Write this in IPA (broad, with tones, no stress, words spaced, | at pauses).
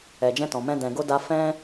ɛ˨d͡ʒɛ̃˧tɔ̃˨mɛ̃˧ dɛ̃˨ɡo˧da˧ fɛ̃˦